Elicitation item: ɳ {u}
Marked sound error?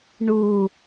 no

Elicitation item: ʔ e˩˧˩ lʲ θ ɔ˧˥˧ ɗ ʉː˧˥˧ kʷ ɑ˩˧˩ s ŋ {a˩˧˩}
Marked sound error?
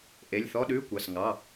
yes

